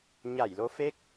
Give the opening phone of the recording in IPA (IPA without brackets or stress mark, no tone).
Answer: ɲ